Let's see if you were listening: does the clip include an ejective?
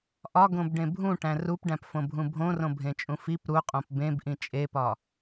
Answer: yes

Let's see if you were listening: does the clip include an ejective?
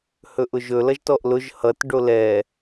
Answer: no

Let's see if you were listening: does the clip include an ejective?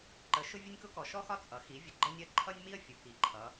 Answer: yes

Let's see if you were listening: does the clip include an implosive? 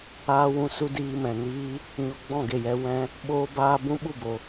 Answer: yes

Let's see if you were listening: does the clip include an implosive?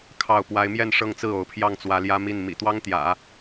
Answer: no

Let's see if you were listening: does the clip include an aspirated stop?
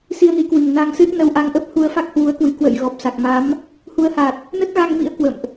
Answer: no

